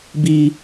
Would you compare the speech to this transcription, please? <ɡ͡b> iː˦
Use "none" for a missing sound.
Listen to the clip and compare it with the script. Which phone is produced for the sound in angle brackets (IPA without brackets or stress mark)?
b